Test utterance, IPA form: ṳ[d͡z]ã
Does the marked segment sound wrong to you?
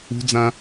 no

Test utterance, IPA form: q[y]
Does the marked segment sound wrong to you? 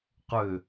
yes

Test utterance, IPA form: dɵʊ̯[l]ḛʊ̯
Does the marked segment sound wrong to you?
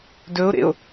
yes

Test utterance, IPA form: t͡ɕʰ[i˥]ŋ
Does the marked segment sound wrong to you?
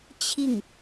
yes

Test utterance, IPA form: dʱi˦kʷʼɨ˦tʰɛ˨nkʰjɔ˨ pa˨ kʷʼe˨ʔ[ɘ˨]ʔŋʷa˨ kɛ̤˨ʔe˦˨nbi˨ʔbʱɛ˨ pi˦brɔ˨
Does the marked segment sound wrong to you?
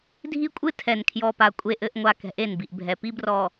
no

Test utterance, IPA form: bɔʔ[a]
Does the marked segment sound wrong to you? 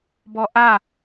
no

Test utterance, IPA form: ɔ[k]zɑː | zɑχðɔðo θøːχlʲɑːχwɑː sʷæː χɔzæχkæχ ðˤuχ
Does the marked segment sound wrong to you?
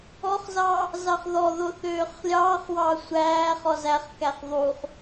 yes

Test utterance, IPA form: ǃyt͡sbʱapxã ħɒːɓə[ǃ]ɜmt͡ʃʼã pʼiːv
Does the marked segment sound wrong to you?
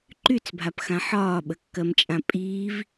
yes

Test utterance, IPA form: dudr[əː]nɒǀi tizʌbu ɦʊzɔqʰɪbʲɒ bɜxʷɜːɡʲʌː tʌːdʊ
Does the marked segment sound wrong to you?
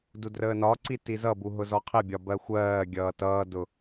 no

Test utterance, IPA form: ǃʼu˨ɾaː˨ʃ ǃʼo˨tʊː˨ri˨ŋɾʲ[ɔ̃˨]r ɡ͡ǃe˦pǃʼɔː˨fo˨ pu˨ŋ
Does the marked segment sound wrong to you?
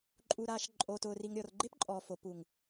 yes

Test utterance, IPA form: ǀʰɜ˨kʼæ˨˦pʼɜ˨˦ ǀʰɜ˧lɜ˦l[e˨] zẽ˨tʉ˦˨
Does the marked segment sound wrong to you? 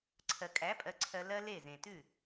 yes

